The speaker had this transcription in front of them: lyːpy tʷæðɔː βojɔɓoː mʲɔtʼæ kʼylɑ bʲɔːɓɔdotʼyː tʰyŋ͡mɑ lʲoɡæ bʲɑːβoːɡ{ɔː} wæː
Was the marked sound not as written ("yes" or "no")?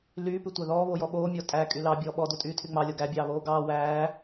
yes